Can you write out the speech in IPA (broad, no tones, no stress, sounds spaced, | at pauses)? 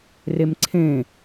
r e m ǀʰ ẽ